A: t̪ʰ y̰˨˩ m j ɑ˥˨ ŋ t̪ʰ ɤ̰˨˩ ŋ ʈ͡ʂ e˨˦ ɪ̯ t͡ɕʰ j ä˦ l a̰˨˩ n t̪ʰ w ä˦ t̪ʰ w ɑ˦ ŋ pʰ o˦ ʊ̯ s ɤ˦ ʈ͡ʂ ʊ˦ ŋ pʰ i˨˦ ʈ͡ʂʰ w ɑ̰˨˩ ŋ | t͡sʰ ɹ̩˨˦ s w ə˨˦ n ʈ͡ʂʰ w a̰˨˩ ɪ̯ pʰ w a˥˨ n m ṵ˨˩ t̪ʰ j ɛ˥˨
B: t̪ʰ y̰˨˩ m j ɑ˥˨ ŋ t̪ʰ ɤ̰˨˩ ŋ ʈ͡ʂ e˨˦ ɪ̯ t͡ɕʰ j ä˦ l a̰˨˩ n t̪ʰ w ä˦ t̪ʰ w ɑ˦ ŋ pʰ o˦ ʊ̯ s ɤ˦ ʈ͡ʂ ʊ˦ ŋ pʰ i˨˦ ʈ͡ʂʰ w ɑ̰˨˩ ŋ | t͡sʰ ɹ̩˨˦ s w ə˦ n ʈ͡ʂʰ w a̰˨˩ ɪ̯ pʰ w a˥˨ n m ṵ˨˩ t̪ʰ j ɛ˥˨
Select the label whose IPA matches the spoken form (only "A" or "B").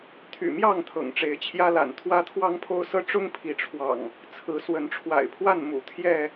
A